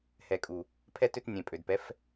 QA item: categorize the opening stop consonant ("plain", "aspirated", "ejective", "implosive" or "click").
ejective